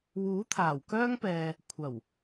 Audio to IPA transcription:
wuː˨˥t̪ʰaː˨˩wkœː˥ŋpɛː˨ | kʷʰɐ˨˩w

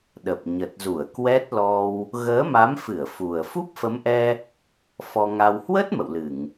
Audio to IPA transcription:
ɗə˨˩p̚ ɲə˨˩t̚zu˧˩ə̯ kwɛ˦˥t̚lɔ˧w | ɣəː˨˦ma˨˦mfɨ˧˩ə̯ fu˨˩ə̯ fu˦˥p̚fə˨˦mʔɛ˧ | fɔ˧ŋa˧w hwə˦˥t̚ mə̰˧˨wlɨ˧˩˨ŋ

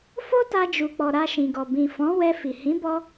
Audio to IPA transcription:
fo˦ta˧ d͡ʒu˨k͡pɔ˨ ɾa˧ʃĩ˨ɡɔ˨ bĩ˨fɔ̃˨˦wɛ˧ fi˨ hĩ˨˦bɔ˧

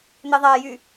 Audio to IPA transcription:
n̪eðˤæjy

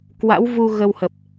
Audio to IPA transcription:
kwa̰˧˥wvu˧ ɣə˧whə˨˩p̚

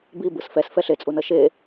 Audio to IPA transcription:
bi bɯsfɛs fɛɬet͡sʼu nʌʃe

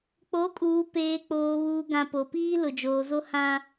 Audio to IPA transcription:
k͡po˨˦kʼuː˨peː˨ k͡poː˨βuː˨ɡã˨ po˨piː˦ lʊ˨d͡ʒoː˨zo˦hã˦

